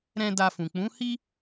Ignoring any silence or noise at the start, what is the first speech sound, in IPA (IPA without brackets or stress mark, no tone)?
ɾ